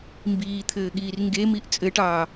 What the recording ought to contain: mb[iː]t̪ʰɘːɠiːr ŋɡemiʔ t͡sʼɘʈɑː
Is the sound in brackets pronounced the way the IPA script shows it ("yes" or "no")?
yes